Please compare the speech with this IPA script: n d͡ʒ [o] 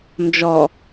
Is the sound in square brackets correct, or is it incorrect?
incorrect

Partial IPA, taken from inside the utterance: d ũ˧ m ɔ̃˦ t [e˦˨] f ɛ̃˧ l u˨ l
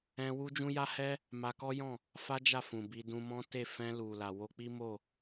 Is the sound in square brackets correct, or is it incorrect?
correct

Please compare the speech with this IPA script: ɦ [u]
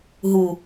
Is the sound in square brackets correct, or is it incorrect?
correct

